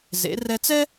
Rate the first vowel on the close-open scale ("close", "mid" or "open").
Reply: mid